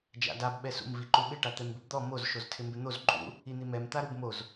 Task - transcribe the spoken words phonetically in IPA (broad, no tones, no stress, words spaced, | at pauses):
d͡ʒa̰dab ɓɛsṵm viǃuɓɪ ʈat̪ɛmbɪbd̪ɔ moz ʃoztʰɪmbɪn̪oz ǃʼṵ | in̪imɛm t̪aɾubmoz